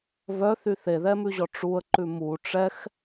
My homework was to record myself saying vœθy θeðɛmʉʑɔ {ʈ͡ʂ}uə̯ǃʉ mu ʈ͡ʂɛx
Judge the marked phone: correct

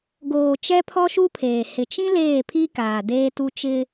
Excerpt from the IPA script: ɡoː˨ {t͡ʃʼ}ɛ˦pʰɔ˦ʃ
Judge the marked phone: incorrect: t͡ʃ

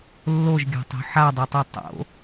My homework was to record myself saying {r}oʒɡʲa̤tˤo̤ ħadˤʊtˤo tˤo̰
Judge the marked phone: incorrect: lː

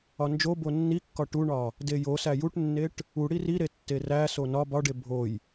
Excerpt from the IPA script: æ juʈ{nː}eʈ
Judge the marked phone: correct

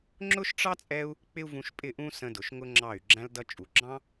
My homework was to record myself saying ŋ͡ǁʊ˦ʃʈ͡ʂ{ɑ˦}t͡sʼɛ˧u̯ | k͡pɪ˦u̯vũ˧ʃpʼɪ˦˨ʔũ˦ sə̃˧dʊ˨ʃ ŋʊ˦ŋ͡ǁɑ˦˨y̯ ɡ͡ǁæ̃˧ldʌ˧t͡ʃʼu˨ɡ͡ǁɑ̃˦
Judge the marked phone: correct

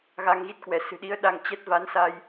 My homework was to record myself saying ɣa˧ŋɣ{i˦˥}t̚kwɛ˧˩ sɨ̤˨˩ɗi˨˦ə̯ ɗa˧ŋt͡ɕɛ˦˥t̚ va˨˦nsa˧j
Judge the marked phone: correct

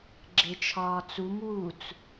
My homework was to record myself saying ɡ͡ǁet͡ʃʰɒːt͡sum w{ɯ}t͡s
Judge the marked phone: incorrect: u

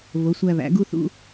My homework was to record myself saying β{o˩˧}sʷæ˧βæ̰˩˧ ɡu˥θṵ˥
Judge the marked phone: correct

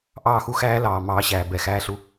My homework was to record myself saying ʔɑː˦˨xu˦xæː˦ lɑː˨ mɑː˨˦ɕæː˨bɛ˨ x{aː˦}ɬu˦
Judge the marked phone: incorrect: æː˦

